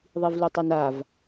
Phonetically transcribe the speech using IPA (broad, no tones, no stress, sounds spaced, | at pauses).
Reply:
ðˤ i v l u tˤ e n a v